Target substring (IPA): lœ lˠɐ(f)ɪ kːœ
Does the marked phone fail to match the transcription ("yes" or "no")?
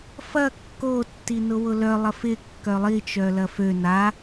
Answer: no